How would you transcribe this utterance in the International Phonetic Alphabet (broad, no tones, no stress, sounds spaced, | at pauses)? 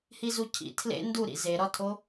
h i z u cʰ ḭ tʰ l ḛ n d u ɾ ḭ z e ɾ ɒ tʰ o